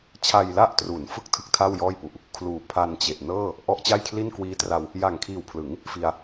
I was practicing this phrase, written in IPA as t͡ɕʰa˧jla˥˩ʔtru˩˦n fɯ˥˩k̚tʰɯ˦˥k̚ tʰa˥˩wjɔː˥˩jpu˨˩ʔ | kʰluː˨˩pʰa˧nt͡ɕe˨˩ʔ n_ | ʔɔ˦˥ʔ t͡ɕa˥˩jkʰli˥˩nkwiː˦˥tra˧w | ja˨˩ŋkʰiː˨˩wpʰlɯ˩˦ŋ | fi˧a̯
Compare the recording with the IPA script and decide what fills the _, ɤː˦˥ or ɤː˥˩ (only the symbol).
ɤː˥˩